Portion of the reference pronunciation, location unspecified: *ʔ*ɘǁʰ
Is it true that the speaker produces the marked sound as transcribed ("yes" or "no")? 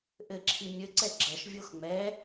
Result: yes